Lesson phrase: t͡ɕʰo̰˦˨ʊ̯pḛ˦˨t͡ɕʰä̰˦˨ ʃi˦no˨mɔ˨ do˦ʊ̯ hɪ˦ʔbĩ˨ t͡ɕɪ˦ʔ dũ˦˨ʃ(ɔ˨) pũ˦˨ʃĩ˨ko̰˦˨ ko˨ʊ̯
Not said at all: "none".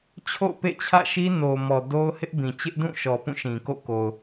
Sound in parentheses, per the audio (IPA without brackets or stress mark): ɔ˨